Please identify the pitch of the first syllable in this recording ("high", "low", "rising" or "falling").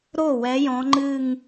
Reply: falling